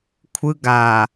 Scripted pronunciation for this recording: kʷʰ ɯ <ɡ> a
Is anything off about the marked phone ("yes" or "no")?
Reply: no